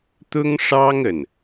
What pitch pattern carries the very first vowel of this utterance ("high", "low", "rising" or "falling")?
high